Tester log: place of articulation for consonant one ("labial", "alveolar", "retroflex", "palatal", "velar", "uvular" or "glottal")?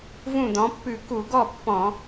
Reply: labial